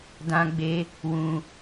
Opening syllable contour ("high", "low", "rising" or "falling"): high